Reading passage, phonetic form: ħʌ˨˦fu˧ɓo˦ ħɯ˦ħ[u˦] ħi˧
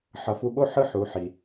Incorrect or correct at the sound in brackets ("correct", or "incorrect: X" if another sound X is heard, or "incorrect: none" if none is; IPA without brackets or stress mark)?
incorrect: u˨˦